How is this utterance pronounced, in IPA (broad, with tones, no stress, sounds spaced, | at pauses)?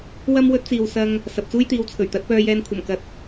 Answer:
w ɐ˥ m w ɵ˥ t̚ t͡s iː˨ w s ɐ˧ ŋ | s ɐ˨ p̚ t͡s uː˥ j t̪ iː˨˧ w t͡sʰ ɵ˨˩ ɥ t̪ ɐ˨˥ t̚ p œː˧ j ɛː˧ n kʷʰ ɐ˨˩ m k ɐ˨ t̚